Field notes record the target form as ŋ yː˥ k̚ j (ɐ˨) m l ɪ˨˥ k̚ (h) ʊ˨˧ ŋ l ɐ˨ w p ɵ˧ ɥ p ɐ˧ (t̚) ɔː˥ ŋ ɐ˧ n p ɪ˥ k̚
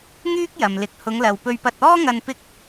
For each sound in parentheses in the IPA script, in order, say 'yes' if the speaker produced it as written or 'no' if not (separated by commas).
yes, yes, yes